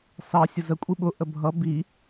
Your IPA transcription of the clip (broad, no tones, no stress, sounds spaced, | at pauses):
s ɑ sʲ ʊ z ə kʷʼ i ɓ ʊ ʔ ə bʱ ʌ b i